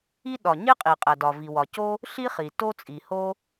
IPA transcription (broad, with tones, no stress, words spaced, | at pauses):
i˥ ɗɒ˩ ɲe˥qʼi˩qʼæ˩ dɒ˩ vi˩wɒ˩co˥ | ɬi˥χi˩ to˥t͡sʼi˩ho˥